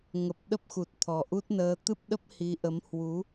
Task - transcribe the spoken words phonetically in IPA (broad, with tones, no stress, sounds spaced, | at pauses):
ŋ ə˨˩ p̚ ɗ ə˦˥ p̚ x u˨˩ t̚ t̪ʰ ɔ˨˩ ʔ u˦˥ t̚ n əː˧ t̪ ɨ˦˥ p̚ ɗ ə˦˥ p̚ h i˨˦ ʔ ə˨˦ m h w u˨˦